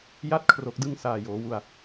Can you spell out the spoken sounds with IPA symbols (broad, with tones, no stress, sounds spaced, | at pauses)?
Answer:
j a˥˩ t̚ kʰ r o˨˩ k̚ d ɯ˧ ŋ s aː˨˩ j oː˩˦ w u˧ a̯